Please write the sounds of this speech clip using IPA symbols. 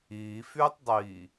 iː f yː tˤ dˤ iː

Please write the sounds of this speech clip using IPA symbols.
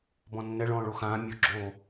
b ɔ̃ nː ɛ ɭ ɔ̃ː ɭ o x ãː mʲ o ɡ͡ǁ oː

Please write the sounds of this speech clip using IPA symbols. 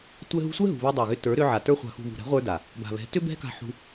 tʷ ɛ˧ ɦ ṳ˧ sʷ ɛ˦ ɦ ṳ˨ β ɛ˧ dˤ ə˞˨ ɣ ʏ˧ t ə˞˨˦ ɾ ʏ˧ ʕ a˨ t ə˞˧ χʷ a̤˨ x ṳ˨ β ṳ˨ ɾ ɛ̤˨˦ ʁʷ ə˞˧ d a˨ | b a̤˨ β ɛ̤˨˦ t ʏ˦ b ɛ̤˦ k a̤˧ ħ ṳ˧

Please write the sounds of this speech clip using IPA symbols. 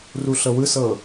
r u ɬ ɤ w ɯ s ɤ

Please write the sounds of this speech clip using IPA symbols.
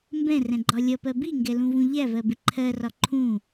m b ɛ̃ r ɛ̃ ɡ͡ǃ ɒ lʲ ʌ p ɜ b i ŋ ɡ ɛ l ũ v ũ ʎ æ v ɜ b ɪ ǃʰ ɜ r ɒ ǃʰ ũ

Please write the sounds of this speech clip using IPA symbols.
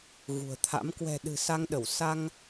ɣ ṳ˨˩ ə̯ t̪ʰ a̰˧˥ m k w ɛ̤˨˩ ɗ ɨ̤˨˩ s a˧ ŋ ɗ ə˧˩ w s a˧ ŋ

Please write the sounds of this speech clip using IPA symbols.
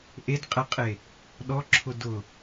ʔ e d qʼ ɛ qʼ e | ɗ ɔ ǁʰ ʊ d ʊ

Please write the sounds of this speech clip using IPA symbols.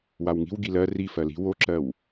w a w ŋ i̤ w ɡ i l ɜ r i f ɜ l i̤ w o ǁ ɜ w

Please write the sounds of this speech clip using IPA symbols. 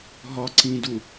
ɦ ɒ ǀ ĩ d u

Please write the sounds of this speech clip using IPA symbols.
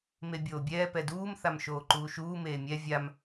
m e bʲ oː bʲ ɛː p ɛ d uː m θ a m ʃ oː ǃ uː ʃ uː m eː mʲ ɛ vʲ a m

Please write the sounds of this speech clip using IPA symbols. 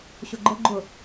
ɕ ʊ ɡ͡ǃ ə ɡ͡ǃ ʊ

